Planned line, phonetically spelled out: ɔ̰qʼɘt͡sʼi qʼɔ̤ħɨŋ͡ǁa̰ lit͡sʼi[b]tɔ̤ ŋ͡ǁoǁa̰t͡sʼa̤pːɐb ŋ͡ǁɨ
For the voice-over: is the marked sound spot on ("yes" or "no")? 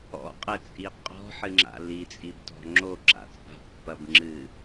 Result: yes